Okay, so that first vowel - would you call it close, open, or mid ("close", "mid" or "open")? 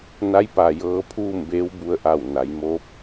open